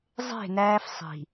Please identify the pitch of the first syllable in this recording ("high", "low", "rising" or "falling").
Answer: falling